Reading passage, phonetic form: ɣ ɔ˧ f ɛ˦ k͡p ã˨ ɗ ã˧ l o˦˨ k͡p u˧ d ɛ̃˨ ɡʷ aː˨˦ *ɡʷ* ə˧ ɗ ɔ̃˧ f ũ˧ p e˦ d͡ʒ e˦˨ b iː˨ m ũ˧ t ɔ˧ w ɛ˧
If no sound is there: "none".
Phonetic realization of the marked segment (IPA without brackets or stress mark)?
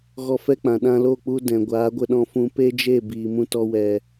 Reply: ɡʷ